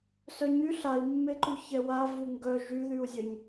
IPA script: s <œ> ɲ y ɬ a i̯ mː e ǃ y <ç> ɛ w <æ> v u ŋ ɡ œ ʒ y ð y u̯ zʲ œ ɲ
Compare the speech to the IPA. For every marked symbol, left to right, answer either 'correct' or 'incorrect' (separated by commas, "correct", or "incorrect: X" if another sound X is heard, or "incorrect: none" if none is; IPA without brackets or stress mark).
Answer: correct, correct, incorrect: a